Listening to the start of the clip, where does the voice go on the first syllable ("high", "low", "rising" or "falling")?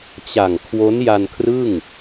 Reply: low